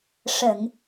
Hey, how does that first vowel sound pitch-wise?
low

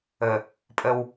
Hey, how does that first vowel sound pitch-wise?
low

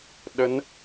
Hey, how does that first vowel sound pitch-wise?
rising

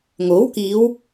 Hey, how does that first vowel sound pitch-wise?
rising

